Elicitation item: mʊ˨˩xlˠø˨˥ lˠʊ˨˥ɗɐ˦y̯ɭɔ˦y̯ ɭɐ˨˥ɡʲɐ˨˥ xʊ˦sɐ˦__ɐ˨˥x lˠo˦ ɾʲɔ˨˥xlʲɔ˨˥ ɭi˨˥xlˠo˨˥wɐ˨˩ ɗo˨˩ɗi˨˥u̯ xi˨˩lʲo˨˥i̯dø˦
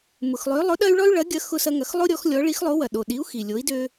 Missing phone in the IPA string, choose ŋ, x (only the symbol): ŋ